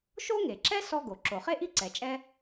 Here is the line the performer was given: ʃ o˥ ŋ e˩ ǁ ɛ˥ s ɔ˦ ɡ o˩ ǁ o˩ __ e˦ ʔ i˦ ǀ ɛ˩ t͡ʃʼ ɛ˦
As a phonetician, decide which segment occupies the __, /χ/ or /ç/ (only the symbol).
χ